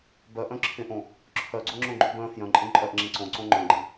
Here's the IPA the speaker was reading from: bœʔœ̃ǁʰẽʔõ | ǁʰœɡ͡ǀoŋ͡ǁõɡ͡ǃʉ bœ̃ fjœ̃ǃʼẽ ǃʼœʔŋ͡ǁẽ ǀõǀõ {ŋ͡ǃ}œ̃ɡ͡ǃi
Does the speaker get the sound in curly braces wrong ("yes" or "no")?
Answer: no